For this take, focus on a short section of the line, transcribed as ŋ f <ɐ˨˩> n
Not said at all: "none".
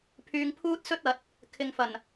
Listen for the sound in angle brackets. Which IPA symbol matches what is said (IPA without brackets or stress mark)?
ɐ˨˩